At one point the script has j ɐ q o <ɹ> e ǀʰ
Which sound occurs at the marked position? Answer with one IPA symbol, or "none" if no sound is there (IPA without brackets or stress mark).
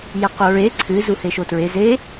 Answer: ɹ